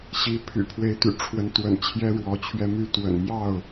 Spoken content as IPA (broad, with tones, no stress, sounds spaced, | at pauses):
ɕ i˨˦ pʰ y̰˨˩ pʰ w e˨˦ ɪ̯ t̪ y̰˨˩ ʈ͡ʂʰ w ə˨˦ n t̪ w ə̰˨˩ n t͡ɕʰ j ɛ˦ ɻ w ɔ˨˦ t͡ɕʰ ɥ ɛ˧ m y˥˨ t̪ w ə̰˨˩ n m j ɑ˥˨ ʊ̯